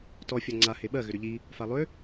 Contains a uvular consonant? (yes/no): no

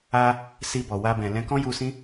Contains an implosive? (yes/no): no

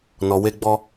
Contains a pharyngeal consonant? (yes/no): no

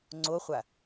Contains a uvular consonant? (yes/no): yes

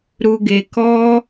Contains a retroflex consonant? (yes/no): no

